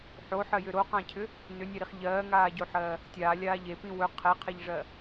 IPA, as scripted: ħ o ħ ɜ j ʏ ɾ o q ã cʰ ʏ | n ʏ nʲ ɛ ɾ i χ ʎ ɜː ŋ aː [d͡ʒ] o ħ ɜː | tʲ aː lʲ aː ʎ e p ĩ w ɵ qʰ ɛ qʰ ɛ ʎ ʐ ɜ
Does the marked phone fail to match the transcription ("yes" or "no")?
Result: yes